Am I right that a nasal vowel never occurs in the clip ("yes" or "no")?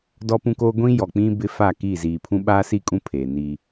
no